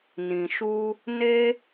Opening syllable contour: low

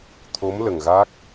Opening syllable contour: rising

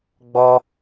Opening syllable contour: high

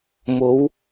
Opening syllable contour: rising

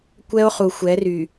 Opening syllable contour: high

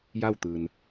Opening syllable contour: falling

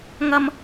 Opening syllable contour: high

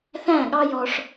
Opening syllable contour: falling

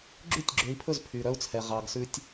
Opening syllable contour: falling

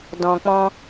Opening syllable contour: low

